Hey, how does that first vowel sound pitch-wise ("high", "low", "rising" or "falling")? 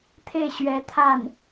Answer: falling